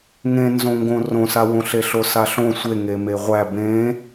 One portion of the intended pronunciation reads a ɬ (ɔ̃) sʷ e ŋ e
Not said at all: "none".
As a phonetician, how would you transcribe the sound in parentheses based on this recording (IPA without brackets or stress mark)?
õ